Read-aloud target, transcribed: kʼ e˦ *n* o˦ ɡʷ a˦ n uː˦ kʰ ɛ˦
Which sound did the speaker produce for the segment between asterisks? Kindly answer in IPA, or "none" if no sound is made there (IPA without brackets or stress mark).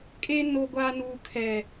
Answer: n